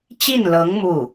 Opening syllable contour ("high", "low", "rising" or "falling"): falling